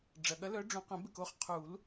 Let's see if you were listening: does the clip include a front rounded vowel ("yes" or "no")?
yes